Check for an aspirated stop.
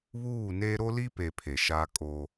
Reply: present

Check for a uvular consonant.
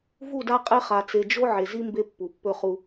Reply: present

